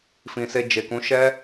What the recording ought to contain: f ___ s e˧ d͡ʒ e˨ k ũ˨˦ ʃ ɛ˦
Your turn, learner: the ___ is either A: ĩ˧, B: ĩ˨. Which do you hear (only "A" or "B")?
B